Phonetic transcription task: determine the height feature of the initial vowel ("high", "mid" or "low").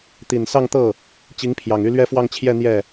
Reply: high